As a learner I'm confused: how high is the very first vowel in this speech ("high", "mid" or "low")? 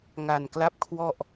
low